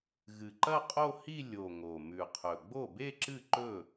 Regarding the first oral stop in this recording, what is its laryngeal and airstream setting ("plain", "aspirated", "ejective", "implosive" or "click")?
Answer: click